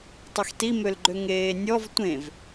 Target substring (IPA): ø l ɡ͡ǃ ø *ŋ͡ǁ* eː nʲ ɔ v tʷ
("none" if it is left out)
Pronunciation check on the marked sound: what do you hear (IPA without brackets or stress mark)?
ŋ